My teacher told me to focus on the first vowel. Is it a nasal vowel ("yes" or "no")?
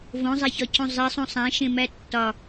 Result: yes